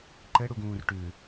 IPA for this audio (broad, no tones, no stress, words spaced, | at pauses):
ǃɘɽuɡũːr ʈʉ